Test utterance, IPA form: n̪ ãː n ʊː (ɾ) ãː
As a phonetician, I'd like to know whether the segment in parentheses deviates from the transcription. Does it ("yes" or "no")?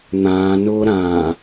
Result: no